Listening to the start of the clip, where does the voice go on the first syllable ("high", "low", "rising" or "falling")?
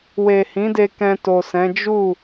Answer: low